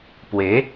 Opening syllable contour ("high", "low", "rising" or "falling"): rising